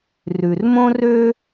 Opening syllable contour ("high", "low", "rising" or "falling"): low